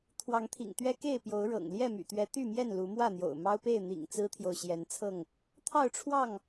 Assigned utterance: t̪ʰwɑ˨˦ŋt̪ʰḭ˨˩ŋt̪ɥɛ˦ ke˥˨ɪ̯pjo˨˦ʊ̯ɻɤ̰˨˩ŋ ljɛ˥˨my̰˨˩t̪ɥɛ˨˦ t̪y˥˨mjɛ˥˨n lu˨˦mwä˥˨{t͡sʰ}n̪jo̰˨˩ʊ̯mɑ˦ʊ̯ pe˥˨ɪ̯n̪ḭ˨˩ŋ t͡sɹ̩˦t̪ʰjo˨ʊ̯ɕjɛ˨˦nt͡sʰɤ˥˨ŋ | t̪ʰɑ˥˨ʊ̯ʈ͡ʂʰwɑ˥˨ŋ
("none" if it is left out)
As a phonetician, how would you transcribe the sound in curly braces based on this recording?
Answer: none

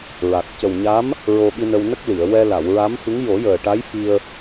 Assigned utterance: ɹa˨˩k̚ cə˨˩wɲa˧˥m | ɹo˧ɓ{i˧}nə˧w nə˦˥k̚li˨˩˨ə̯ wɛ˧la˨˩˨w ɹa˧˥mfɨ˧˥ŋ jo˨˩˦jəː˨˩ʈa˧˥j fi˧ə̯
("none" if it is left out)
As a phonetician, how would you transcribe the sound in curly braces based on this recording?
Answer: i˧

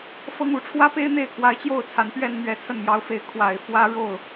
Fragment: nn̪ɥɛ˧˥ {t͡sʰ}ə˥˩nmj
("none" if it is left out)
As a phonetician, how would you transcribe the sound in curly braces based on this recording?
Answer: t͡sʰ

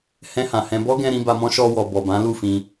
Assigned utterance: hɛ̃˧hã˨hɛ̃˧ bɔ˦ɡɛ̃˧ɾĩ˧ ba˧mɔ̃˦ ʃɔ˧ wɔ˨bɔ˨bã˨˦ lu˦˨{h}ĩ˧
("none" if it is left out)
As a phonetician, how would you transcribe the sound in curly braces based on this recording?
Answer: f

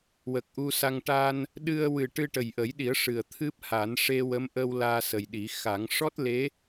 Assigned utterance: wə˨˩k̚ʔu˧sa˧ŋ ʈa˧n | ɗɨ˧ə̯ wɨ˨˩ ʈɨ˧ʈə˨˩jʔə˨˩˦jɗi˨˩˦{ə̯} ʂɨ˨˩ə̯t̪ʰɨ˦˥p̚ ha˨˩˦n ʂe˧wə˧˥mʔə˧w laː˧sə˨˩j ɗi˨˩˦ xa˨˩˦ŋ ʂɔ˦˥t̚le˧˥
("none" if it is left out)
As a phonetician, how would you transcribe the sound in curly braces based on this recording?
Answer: ə̯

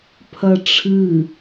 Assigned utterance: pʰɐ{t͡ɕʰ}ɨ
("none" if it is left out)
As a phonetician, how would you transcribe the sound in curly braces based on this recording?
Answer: ʈ͡ʂʰ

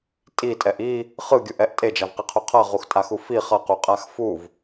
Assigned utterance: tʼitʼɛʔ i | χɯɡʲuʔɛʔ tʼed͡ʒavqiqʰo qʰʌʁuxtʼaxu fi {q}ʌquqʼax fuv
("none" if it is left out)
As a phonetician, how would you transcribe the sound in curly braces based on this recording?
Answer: χ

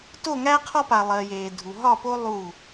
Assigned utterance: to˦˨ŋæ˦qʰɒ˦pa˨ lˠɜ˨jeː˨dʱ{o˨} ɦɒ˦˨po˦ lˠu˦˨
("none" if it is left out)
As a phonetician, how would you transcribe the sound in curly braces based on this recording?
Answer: u˨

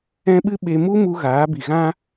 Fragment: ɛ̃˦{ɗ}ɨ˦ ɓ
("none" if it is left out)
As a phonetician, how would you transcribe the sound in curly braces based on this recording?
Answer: ɓ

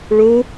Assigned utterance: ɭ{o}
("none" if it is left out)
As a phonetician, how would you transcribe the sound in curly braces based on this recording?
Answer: u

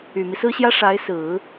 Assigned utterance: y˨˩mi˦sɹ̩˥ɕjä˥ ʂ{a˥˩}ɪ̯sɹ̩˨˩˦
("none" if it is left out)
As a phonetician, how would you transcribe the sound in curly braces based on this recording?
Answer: a˧˥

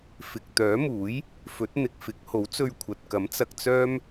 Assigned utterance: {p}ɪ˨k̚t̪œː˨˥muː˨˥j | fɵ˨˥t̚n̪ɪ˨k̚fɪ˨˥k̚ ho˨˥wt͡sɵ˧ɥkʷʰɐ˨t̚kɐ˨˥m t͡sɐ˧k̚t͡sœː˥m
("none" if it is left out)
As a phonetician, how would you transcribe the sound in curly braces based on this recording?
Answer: f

